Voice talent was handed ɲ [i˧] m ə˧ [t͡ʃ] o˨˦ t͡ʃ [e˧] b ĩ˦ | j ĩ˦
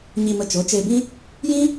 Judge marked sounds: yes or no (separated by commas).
yes, yes, yes